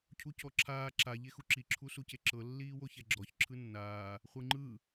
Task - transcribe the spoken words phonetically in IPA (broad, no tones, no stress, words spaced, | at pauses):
cʰucɔǁʰaː ǁa ʎexuǁi ǁʰusuceǁɤ lːiːwoçɛɡ͡ǁɔç ǁʰɯnːaː | χʷɯŋ͡ǃɯ